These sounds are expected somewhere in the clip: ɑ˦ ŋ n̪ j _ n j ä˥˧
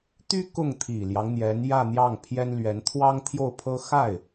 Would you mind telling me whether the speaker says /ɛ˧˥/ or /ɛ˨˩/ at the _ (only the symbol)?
ɛ˧˥